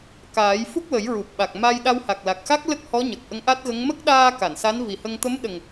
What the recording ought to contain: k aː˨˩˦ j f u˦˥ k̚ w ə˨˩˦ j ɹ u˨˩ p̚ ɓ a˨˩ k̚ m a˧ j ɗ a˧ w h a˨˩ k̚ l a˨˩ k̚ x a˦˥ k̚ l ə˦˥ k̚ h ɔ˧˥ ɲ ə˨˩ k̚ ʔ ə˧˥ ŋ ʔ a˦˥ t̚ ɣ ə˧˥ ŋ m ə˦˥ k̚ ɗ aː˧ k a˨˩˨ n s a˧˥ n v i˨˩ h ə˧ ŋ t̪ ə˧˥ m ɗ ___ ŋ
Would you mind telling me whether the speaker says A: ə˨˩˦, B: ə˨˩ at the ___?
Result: B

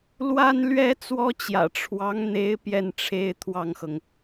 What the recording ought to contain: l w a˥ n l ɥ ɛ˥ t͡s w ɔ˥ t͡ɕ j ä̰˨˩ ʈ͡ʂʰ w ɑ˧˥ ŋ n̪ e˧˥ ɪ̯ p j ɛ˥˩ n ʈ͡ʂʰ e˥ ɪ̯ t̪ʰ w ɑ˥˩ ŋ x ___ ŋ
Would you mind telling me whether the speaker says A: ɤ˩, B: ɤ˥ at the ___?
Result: A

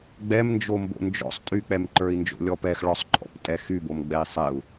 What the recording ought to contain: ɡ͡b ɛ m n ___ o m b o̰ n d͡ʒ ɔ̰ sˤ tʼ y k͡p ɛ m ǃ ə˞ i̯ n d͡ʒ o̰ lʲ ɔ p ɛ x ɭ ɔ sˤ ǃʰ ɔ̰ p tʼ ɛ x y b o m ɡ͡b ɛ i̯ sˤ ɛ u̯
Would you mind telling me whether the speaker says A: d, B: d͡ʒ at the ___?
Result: B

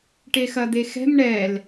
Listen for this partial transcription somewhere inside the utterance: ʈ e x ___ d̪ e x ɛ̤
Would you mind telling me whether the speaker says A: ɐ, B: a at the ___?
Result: A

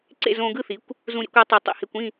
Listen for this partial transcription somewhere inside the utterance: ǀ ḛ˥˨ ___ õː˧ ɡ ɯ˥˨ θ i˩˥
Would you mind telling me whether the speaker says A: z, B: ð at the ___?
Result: A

